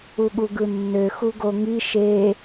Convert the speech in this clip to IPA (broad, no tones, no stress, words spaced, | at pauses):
uɠuɡɯnːø xuɡoŋi ʃe